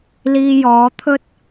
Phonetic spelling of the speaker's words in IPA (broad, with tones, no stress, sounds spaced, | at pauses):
l iː˧ j ɔː˨˧ t̪ʰ ɵ˥ t̚